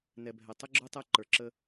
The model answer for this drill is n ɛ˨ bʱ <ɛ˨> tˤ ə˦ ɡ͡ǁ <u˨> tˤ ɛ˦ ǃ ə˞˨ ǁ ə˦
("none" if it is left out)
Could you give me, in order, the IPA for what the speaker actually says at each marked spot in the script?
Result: ɛ˨, u˦

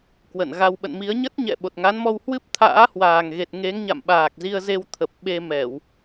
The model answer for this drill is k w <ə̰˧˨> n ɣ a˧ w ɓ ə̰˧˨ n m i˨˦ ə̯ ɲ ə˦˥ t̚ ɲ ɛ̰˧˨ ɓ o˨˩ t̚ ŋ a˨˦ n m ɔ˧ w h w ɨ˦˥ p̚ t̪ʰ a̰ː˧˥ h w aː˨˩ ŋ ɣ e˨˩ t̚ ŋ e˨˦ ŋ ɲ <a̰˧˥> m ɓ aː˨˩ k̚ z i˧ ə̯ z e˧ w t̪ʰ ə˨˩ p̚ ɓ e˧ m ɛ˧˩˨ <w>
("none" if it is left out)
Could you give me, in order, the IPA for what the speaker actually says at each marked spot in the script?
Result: ə̰˧˨, a̰˧˨, w

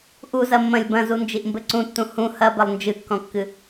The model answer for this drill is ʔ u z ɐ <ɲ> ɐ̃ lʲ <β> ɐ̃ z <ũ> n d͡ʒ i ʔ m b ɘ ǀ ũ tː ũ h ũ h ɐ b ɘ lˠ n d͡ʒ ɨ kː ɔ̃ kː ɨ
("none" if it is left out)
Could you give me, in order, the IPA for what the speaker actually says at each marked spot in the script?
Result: mː, b, u

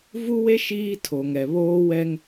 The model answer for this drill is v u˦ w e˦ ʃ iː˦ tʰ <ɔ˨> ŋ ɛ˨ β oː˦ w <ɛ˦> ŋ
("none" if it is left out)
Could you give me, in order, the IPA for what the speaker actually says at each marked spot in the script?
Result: o˨, ɛ˦

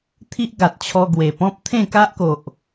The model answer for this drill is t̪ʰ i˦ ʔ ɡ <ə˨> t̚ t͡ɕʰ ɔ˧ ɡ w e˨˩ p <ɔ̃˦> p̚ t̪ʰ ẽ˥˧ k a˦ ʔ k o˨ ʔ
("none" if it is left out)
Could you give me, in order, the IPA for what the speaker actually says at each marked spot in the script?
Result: a˨, ɔ̃˦

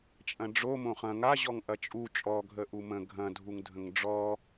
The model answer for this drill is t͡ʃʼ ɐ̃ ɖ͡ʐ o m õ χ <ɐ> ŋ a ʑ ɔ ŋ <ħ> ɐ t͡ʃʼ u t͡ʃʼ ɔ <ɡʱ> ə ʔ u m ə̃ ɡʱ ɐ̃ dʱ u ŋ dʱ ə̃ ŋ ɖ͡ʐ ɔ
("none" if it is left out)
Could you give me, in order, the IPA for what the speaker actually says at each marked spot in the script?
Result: ɐ̃, ʔ, ɡʱ

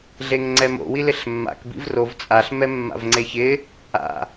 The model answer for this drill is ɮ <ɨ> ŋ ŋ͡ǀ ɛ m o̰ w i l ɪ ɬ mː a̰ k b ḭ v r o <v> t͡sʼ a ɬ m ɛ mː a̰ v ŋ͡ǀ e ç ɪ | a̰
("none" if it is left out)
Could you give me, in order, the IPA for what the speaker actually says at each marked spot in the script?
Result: e, v

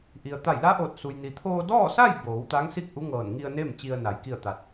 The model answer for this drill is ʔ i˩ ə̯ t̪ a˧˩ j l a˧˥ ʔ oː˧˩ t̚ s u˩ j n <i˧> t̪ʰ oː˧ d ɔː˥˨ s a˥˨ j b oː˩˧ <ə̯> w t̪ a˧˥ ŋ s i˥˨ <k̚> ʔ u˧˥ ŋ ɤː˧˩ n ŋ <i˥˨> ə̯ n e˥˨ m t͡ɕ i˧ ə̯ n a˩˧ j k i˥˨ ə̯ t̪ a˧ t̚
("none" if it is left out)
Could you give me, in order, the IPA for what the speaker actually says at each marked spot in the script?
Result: i˩, none, k̚, i˧

